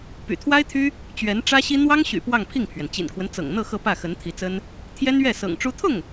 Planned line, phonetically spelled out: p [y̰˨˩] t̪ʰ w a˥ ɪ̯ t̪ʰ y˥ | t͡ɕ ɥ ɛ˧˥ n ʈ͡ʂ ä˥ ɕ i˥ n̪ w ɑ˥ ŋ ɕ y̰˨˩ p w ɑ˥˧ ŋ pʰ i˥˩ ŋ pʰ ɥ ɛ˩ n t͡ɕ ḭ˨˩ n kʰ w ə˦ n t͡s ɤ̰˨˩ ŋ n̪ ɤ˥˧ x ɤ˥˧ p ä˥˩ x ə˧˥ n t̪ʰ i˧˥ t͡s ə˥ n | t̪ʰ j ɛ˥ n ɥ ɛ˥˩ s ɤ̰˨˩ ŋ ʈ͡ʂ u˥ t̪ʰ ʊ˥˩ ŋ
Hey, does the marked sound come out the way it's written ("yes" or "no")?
yes